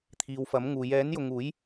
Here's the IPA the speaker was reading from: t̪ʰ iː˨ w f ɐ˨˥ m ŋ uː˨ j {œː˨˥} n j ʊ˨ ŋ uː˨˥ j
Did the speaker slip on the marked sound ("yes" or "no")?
yes